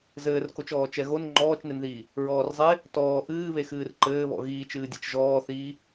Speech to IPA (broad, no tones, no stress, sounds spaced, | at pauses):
z ɘː r k o t͡ʃ ɔː t͡ʃ ɛ ɣ o n ŋ͡ǃ ɔː t͡ʃ n e n ð iː | ɹ ɔː r zˤ e | t ɔː ʔ ɨː β e x ɨː r ǃ ɘː β ɔ̰ ɣ iː t͡ʃ ɨː dʲ ɛ t͡ʃ ʒ ɔː θ iː